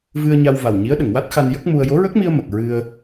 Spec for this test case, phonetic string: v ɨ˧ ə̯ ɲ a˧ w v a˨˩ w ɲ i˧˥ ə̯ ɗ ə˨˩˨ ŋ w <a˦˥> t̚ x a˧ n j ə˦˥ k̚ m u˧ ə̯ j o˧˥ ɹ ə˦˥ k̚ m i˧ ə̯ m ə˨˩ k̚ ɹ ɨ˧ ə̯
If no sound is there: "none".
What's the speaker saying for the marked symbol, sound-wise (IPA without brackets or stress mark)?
a˦˥